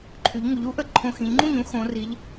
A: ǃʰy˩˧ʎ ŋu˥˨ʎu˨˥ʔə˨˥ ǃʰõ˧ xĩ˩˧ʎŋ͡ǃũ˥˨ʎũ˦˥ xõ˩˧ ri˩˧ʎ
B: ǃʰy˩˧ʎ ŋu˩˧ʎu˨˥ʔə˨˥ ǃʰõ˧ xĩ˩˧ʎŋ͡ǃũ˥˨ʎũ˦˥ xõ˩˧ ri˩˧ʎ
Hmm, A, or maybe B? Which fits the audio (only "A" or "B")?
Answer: B